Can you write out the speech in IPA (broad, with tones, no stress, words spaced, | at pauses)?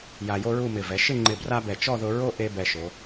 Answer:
ja˧jo˥ɹu˥˧mɪ˧˩ vɛ˩˧ʃɪ˥˧ŋ͡ǃɪ˧˩ bra˥bɛ˧˩ t͡ʃɔ˥˧ðʊ˧ ɹo˥ ʔe˥bɛ˧ʃo˩˧